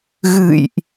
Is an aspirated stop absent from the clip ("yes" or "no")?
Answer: yes